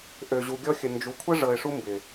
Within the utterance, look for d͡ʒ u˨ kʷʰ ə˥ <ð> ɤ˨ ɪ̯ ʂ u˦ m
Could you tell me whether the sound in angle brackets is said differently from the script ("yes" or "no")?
yes